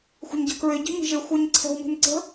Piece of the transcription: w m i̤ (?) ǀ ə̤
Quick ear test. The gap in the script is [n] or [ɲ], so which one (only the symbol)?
n